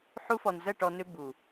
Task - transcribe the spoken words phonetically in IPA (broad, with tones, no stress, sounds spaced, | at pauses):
ħ u˧ f ɔ˨ n z ə˦˨ ʈ ɔ˧ n ʏ˦ b u˨